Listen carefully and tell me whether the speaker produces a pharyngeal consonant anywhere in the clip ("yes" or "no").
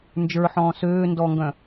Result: yes